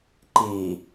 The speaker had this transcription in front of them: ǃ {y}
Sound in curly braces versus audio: incorrect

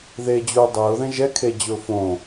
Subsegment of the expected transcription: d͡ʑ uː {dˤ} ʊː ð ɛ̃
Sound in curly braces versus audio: correct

